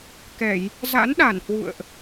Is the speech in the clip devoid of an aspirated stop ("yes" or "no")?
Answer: yes